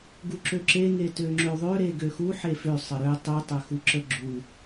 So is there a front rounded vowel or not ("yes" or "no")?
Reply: yes